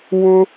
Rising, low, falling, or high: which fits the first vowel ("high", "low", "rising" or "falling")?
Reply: high